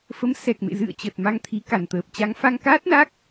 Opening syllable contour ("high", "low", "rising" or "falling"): rising